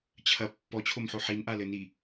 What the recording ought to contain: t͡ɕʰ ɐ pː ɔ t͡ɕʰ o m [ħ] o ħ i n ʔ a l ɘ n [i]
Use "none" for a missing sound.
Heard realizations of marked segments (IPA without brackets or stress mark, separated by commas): ħ, i